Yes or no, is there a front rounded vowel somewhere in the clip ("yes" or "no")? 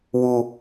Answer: no